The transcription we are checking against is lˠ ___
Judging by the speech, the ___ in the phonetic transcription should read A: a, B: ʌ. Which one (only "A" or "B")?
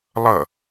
B